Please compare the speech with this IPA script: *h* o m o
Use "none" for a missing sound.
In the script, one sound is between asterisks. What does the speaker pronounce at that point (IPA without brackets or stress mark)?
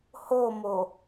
h